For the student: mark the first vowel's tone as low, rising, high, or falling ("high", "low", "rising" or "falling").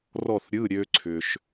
falling